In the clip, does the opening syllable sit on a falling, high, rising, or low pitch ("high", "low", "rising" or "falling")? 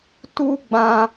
high